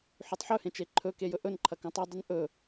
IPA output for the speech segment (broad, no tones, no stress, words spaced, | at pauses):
ħʉtˤħɵhẽ t͡ʃeǃʰɵke jɵʔɵnǃʰɐ kõtˤɨdˤʉn ʔɵ